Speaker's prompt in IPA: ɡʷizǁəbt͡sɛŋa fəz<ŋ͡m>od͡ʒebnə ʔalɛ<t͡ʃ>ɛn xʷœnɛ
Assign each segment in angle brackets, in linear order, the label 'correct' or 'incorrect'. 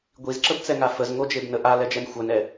incorrect, incorrect

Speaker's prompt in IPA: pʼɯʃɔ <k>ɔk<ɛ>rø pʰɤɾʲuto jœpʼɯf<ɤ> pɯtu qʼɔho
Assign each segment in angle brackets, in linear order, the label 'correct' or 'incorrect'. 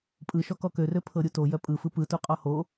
correct, incorrect, incorrect

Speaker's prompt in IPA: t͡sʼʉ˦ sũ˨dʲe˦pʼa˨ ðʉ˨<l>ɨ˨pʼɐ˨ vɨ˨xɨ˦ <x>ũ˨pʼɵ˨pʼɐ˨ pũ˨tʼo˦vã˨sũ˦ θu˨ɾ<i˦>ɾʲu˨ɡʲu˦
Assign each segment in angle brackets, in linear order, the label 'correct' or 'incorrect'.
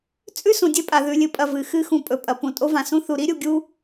incorrect, correct, correct

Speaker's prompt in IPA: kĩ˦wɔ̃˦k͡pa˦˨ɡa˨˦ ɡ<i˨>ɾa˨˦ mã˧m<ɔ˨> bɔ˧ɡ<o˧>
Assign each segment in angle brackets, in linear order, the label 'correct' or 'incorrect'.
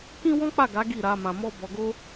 incorrect, incorrect, incorrect

